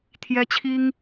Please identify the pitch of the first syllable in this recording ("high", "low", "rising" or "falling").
high